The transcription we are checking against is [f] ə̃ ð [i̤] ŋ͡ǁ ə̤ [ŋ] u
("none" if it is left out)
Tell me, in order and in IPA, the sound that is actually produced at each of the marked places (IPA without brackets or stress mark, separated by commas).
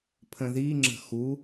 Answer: pʰ, i, x